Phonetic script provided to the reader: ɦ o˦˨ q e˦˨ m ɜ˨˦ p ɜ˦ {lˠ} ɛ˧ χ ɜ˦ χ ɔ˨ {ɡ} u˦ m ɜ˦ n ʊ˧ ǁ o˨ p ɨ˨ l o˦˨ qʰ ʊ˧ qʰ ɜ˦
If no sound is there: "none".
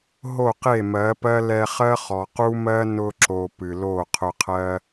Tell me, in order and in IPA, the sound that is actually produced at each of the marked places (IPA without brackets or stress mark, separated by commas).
l, q